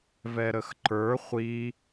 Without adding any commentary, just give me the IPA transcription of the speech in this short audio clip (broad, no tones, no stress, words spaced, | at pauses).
vɛɾəxǃə˞ χʷi